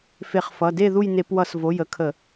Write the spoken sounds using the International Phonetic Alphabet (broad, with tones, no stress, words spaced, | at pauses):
fe˧˩˧χfʌ˩˧˩de˥˨ ðu˥˨j ne˧˩˧pwʌ˧˩˧svo˩˧˩j ə˨˥kʰə˧˩˧